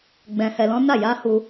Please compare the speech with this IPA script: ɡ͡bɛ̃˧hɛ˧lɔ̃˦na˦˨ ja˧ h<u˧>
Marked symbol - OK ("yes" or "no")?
yes